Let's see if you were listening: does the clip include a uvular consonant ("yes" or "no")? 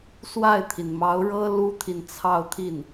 no